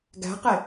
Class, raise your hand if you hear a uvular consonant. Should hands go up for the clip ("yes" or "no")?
yes